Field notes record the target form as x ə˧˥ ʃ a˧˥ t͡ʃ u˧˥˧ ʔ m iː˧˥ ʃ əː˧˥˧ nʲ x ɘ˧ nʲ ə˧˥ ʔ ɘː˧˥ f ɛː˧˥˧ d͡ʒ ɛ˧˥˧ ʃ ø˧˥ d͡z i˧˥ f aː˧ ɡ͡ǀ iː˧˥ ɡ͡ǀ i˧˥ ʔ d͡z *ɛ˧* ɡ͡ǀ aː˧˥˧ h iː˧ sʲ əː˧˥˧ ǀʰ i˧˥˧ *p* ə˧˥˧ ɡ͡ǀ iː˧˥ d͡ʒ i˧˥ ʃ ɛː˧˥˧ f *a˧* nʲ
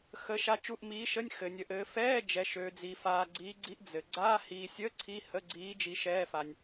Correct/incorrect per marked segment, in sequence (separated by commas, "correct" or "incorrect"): incorrect, incorrect, correct